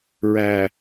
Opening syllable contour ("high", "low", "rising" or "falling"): low